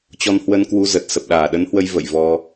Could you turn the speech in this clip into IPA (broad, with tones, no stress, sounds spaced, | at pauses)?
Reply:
t͡ɕ ɔ˧ n h w ə˧ n k w u˧ z ə˨˩ t̚ s ə˨˩ p̚ ɗ aː˧˩ ɗ ə˨˦ n h w ə˧ j v ə̰˧˨ j v ɔ˧